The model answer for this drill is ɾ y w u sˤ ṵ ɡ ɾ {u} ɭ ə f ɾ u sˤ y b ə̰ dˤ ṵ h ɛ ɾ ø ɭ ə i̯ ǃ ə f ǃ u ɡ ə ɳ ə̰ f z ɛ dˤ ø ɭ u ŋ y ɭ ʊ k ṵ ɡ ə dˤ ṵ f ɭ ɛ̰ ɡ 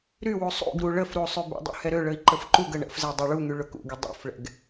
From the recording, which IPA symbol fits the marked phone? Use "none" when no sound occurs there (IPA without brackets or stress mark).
u